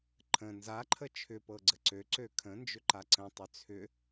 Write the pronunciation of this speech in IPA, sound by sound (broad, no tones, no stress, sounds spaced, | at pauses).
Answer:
ǃʰ ə̃ n z a ǃʰ ə t͡ʃʰ ʏ p ɤ ɡ͡ǀ ə ǀ ø ǀ ø kʰ ə̃ n d͡ʒ ʏ ǃ a ǀ ə̃ tˤ ʏ t͡sʰ ʏ